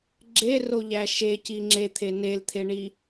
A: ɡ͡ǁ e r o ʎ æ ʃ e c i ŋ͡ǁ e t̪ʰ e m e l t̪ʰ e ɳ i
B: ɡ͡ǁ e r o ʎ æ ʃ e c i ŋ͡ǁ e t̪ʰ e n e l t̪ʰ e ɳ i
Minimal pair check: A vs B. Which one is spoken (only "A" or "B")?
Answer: B